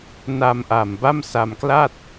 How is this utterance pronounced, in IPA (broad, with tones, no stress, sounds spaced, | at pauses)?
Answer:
n a˧ m ʔ a˨˩ m b a˥˩ m s a˧ m k l a˥˩ t̚